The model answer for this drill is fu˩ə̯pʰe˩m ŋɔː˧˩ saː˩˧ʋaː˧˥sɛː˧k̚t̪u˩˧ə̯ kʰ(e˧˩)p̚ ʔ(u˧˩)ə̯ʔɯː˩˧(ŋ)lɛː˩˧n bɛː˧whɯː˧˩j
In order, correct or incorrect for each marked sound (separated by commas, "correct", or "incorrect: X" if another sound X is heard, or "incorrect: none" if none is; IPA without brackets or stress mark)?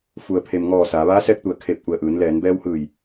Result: correct, correct, incorrect: n